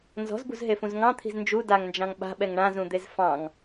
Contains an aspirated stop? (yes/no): yes